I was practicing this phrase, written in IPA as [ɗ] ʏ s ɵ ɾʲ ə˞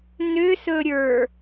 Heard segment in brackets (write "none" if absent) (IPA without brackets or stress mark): n